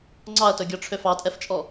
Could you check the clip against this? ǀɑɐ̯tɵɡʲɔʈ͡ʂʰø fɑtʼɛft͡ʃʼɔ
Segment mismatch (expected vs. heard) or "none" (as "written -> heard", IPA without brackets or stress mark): ǀ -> ŋ͡ǀ